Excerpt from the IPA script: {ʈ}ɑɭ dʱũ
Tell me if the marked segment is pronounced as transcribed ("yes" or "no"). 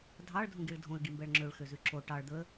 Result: no